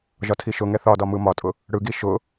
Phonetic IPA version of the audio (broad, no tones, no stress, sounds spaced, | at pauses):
ʒ ɒ tʰ i ʃ ʊ ŋ ɛ θ ɒ d ɒ m ɯ m ɒ tʼ ʊ | ɽ ɯ ɡ i ʃ ʊ